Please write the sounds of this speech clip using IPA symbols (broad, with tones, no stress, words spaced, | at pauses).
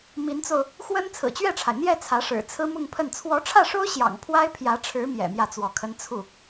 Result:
mi˧˥nt͡so˧ʊ̯ | xwə˥n t͡sʰɹ̩˨˩t͡ɕɥɛ˥˩ʈ͡ʂʰa˩ɪ̯ n̪jɛ˥˩ t͡sʰä˧˥ʂɻ̩˨˩ t͡sʰɹ̩˥mʊ˥˧ŋpʰə˥˩n t͡sʰwɔ˧˥ʈ͡ʂʰä˥˩ʂo˥ʊ̯ ɕjɑ̰˨˩ŋpʰwa˥ɪ̯ pʰjä˧˥ʈ͡ʂʰɻ̩˧˥ mjɛ̰˨˩mjä˥˩t͡swɔ˧˥kʰə˥n t͡sʰu˥˩